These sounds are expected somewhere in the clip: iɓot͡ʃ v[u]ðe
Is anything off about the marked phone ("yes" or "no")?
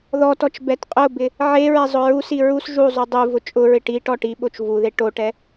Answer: no